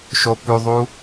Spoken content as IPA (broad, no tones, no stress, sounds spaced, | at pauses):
ʃ o p ʉ ðˤ u